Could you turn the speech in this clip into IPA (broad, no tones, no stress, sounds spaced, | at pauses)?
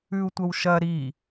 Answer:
ʉ u̯ tʷ ɐ w ʃ ɐ ɾ i